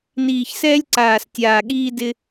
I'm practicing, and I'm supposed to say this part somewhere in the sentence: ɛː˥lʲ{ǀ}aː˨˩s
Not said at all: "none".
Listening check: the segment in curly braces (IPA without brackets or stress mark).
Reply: ǀ